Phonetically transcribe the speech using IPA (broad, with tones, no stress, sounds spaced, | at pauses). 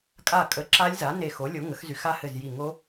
kʼ a˧˩ kʼ ə˩˥ ǁ a˦˥ lʲ z a˩˥ n e˧˩ x o˩˥ lʲ o˩˥ ŋ ə˩˥ x z y˩˥ x a˦˥ h ɘ˧˩ z j i˧˩ ŋ o˦˥